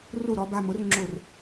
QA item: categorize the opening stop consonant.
plain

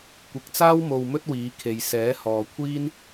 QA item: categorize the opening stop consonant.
plain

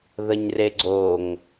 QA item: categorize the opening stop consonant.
click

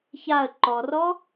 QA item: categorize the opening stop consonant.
click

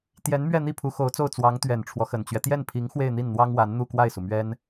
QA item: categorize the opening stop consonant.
plain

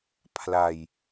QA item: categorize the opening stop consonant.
aspirated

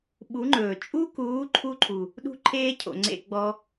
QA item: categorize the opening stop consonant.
implosive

